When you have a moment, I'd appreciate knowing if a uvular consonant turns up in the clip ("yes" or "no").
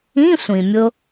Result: no